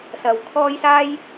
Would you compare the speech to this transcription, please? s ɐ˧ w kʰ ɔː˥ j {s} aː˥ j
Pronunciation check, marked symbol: correct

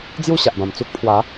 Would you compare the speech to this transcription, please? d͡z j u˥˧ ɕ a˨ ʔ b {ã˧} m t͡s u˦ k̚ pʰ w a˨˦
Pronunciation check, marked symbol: incorrect: ã˨˩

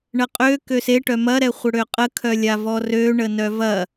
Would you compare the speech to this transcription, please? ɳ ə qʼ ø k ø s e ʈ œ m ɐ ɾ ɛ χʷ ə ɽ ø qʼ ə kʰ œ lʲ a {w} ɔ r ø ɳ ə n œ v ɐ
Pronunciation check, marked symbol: incorrect: v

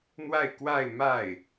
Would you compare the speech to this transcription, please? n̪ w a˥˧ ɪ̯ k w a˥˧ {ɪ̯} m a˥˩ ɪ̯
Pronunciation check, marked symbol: correct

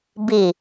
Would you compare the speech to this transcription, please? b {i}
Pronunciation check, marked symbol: correct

